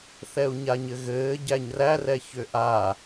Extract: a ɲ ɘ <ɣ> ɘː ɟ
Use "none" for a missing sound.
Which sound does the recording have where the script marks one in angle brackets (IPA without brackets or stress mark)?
ɣ